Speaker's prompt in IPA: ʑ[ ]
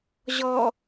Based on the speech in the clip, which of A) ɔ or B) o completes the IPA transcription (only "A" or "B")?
A